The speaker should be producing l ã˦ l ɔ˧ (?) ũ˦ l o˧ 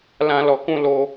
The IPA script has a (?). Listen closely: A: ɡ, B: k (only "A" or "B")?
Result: B